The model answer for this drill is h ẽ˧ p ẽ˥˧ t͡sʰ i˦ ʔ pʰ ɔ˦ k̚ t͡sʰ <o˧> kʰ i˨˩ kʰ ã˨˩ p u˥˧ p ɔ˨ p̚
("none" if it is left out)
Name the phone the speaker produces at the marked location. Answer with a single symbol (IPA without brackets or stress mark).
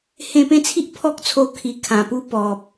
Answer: o˧